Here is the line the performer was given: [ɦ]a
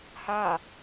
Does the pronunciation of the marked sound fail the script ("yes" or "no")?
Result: yes